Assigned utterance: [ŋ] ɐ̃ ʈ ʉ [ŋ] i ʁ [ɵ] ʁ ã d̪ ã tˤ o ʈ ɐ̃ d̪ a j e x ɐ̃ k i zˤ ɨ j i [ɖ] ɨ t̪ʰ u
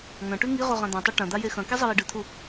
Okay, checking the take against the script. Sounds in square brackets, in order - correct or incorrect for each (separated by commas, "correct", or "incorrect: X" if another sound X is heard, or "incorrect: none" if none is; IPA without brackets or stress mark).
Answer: correct, correct, incorrect: o, correct